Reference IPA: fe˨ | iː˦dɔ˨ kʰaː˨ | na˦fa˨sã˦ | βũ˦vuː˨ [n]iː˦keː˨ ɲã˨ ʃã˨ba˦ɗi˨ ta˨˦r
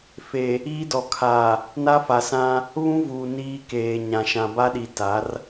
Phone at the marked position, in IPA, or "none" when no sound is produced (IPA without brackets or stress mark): n